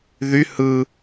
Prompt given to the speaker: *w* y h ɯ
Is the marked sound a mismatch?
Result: yes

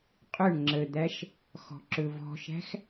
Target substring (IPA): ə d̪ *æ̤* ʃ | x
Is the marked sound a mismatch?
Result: yes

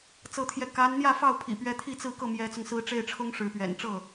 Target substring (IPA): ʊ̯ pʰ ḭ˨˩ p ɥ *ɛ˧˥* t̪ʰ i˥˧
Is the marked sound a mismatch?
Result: no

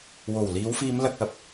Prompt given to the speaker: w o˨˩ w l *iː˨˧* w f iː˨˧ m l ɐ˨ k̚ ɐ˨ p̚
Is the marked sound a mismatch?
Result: no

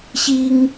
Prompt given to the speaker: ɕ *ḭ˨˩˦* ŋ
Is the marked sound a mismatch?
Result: yes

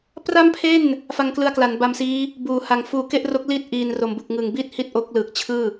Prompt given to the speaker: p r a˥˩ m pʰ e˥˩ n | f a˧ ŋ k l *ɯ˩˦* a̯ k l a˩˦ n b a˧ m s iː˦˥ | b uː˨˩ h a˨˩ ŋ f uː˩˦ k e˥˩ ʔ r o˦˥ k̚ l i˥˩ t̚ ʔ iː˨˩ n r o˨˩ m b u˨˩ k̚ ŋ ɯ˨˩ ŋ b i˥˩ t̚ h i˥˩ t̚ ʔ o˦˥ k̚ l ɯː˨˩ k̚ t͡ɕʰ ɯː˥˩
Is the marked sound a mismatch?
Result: yes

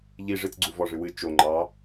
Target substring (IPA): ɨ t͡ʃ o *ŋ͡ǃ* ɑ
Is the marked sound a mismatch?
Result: no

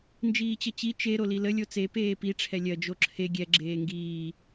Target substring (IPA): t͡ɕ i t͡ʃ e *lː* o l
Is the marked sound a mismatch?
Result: yes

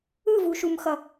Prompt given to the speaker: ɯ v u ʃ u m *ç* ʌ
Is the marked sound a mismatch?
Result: yes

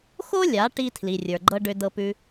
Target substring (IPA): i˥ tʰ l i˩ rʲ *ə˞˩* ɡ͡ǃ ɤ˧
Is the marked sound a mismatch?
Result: no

